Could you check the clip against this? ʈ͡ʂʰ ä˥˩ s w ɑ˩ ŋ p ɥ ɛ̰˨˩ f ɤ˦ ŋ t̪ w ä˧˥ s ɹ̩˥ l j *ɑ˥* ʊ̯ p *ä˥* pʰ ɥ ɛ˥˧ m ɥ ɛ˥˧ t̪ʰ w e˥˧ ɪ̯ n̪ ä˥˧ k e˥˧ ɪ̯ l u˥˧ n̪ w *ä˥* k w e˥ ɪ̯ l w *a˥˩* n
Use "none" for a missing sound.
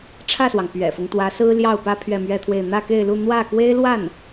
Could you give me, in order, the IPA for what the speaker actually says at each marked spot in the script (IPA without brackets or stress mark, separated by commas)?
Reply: ɑ˥˩, ä˥, ä˥˩, a˥˩